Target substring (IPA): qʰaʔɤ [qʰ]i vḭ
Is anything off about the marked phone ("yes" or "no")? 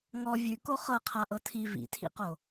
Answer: yes